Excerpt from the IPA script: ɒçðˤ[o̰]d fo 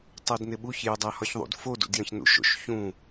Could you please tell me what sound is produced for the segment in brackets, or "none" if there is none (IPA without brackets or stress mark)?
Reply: ṵ